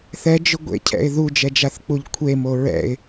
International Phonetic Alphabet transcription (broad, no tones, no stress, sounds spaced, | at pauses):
θ ɛ d͡ʒ ʊ ɡʷ ḛ cʰ ɛ̰ ɪ̯ ð u d͡ʒ ɛ d͡ʒ a θ k͡p u ʎ kʷʰ e m o ɹ ɛ̰ ɪ̯